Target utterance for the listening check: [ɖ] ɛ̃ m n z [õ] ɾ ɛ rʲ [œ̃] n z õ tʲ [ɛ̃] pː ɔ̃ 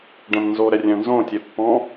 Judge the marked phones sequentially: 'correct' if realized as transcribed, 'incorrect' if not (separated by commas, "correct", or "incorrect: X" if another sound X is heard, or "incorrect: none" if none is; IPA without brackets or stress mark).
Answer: correct, incorrect: o, correct, incorrect: ɛ